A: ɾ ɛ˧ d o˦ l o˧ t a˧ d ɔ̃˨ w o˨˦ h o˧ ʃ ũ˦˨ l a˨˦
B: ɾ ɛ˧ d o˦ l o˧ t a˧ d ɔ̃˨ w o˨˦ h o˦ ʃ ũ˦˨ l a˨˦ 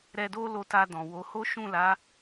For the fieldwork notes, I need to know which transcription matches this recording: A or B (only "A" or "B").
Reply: B